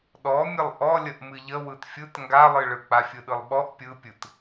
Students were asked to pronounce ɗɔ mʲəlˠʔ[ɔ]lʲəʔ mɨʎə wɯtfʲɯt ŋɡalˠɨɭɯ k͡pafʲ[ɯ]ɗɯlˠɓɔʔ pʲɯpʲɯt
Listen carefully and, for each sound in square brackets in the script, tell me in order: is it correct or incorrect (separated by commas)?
correct, correct